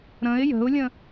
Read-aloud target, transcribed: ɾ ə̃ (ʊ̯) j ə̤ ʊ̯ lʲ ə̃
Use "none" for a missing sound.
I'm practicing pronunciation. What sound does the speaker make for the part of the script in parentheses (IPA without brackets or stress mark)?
ɪ̯